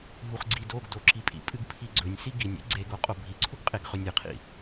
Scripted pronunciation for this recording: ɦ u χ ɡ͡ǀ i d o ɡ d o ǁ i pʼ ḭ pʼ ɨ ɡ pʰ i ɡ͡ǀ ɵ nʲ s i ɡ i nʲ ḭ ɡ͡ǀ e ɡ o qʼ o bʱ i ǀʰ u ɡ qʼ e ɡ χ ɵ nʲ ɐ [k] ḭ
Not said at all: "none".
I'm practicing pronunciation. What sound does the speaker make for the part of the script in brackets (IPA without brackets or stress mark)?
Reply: qʰ